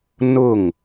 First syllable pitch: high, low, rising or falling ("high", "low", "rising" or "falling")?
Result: falling